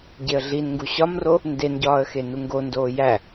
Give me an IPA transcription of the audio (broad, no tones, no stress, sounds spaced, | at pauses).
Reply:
ɟ e ə̯ ɮ i n ŋ ɡ u ɕ ɒ m r o | n d e n ɟ ɒː ə̯ x e n u ŋ ɡ o n d oː j æ